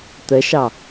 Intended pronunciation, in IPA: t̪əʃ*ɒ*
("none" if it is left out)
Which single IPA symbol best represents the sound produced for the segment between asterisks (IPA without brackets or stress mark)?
ɑ